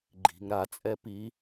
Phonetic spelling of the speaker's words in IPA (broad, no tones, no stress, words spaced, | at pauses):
ɡ͡ǃi̤ŋ ɾat͡sʼɛ pi